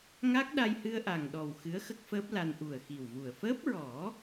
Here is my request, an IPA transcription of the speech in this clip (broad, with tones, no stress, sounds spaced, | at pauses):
ŋ a˦˥ k̚ ɗ a˧ j h ɨ˧ ə̯ ʔ a˨˩ ŋ ɗ ɔ˨˩ w x ɨ˧˥ ə̯ x ə˦˥ k̚ f əː˦˥ p̚ l a˧ n ʔ u˨˩ ə̯ x i˨˩ w v u˨˩ ə̯ f əː˦˥ p̚ ɹ ɔ˨˩˦